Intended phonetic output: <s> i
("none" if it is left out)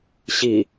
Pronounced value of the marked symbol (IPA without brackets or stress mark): ɕ